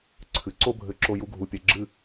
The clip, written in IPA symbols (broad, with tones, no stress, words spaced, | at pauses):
ǀʰɨ˨ǀo˦bʱɘ˧ǁo˧ ju˧ɡʱu˨pʲɛ˨ɡ͡ǁɨ˦˨